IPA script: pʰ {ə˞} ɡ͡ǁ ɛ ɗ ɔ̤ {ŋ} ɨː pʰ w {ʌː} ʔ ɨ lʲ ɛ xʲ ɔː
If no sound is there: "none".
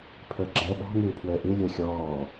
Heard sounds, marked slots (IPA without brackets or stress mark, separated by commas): ə˞, ŋ, əː